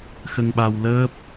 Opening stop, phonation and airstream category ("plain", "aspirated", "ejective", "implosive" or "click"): implosive